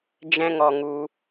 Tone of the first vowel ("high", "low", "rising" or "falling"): high